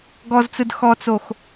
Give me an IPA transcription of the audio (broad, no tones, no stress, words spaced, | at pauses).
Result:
ɡɔzt͡sɯd xɔt͡sox